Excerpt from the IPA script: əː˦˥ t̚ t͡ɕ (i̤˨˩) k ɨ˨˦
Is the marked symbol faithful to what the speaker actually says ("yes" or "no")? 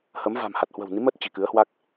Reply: yes